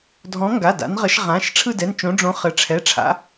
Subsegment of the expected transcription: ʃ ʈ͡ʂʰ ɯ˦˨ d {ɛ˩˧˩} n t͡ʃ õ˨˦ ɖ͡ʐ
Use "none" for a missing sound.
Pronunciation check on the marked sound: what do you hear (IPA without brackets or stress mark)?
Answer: ɛ˩˧˩